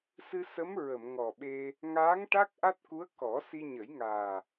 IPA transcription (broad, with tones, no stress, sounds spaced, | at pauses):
s ɨ˧ s ə˧˥ m ɹ ə˨˩˨ m ŋ ɔ˨˩ ɓ e˧ | ŋ aː˧˥ ŋ ʈ a˦˥ k̚ ʔ a˦˥ t̚ k u˧˥ ə̯ k ɔ˨˩˦ s i˧ ɲ ə˨˩˦ j ŋ aː˨˩